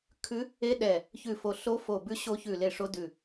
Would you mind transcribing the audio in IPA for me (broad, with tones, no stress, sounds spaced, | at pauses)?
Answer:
kʰ ʉ˦˥ | e˦˥ ɗ ɛ˦˨ | ç ʉ˦˨ f o˦˨ ɬ o˦˥ f o˦˨ b ʉ˦˥ ɕ o˦˥ ç ʉ˦˨ l e˦˨ ʂ o˦˥ d ʉ˦˨